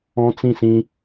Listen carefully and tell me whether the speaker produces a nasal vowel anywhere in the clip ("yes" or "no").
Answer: yes